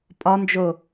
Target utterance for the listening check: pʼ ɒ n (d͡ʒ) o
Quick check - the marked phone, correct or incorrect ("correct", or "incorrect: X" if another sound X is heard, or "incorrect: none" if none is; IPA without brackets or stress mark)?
correct